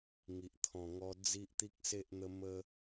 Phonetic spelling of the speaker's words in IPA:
ŋ i˨ ʔ t̪ʰ ɔ̃˨˩ ŋ ɔ˧ d͡z i˦ ʔ t̪ i˦ k̚ s e˦ ʔ n̪ ə˦ m ə˦

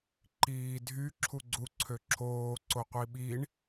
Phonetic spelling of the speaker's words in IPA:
ǃ iː dʱ y ǁʰ u ɡ͡ǀ u ǀʰ ø ǁʰ oː ǀ o qʷ i ɓ i ɳ

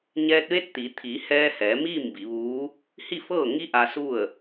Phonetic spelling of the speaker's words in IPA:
ɲ ɛː˧ t̚ ʋ e˧˥ t̚ t̪ i˩˧ t̪ʰ iː˩˧ h ɛː˧ h ɛː˩˧ m iː˥˨ m b i˩˧ ʋ uː˧˥ | h i˥˨ f ɤː˥˨ ŋ i˧ ʔ aː˧ s u˥˨ ə̯

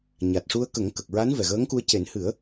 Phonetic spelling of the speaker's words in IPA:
ɲ a˨˩ t̚ ʂ u˧ ə̯ k ə˨˩˦ ŋ k ə˨˩ k̚ ɹ a˧˥ n v ɛ˨˩ ɣ əː˧˥ ŋ k u˧ ə̯ c e˨˩˦ n h ɨ˨˩˦ ə̯

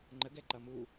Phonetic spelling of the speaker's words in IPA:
ŋ͡ǃ ə ɡ ɛ ǃ ʌ m u

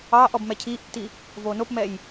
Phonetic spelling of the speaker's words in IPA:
ɑː ʔ ɔ b m ɛ cʰ iː ʔ tː i | v oː n o p m ɛ j

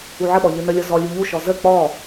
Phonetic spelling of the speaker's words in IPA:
u ʕ ə ɓ ɔ ʎ ɯ n ə lʲ ɔ z ɔ lʲ u ʎ u ʃ ɔ z ə k͡p ɔ

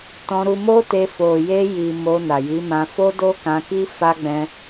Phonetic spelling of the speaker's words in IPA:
t ɔ̃˧ ɾ u˧ m o˦ t e˧ f o˨ j e˧ j i˨ m o˧ n a˨ j i˨˦ m ã˧ f o˦ d o˦ k ã˧ k i˦ f a˦ ɡ͡b ɛ̃˦

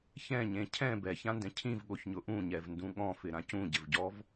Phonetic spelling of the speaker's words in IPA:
ç ɛ̃ ɲ ẽ cʰ ɛ̃ b ɛ ç ã n d ɛ̃ cʰ ĩ v ɠ o ç ɲ ʊ ʔ ũ ɲ ɛ v n d ũ ɠ ɔ̃ f ɪ ɾ ã c ũ ɟ ɪ v ɟ ɔ v

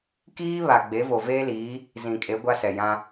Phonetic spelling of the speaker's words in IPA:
k iː˦ β a˨ ɡ͡b e˨˦ v o˨ v eː˦ l iː˨˦ | z ĩ˨ kʼ e˨˦ ɡʷ a˦ s ɛ˨ j ã˦

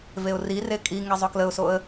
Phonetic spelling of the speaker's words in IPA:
v e ʊ̯ r i r e kʼ i ŋ e zˤ ɵ k l ə ʊ̯ s o ə̯

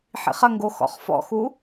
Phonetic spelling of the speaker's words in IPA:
ħ ḭ χ ɐ ŋ ɡ o x ɔ̰ χ f ɔ̰ x u

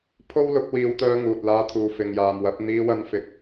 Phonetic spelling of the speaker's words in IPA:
pʰ o˥ w l ʊ˨˥ k̚ w iː˨˧ w t̪ œː˧ ŋ uː˨ t̚ l aː˧ t̪ʰ uː˨ f ɪ˨ ŋ j aː˨ m w ɐ˨˥ p̚ n̪ iː˧ w ɐ˧ n f ɪ˨˥ k̚

